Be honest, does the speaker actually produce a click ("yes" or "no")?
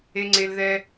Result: yes